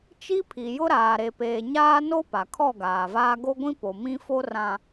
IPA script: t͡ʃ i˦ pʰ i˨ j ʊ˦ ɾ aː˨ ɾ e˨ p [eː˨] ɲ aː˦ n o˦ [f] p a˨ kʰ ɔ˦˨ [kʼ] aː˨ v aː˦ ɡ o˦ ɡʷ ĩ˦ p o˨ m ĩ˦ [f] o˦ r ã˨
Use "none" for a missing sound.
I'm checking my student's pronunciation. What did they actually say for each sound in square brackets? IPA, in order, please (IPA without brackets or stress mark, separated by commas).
eː˨, none, ɡ, f